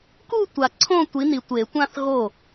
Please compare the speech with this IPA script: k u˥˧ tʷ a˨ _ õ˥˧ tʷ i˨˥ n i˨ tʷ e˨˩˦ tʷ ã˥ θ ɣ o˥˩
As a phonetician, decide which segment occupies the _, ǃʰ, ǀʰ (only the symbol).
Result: ǀʰ